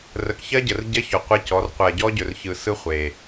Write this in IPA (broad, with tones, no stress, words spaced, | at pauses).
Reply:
rə˨kçɜ˦ɟə˨r ɟɜ˦çɔ˨ qʷɛ˦cɔ˨˦r qʷɜ˨ɟɔ˦ɟɵ˨rçɯ˨ sɯ˦χʷe˨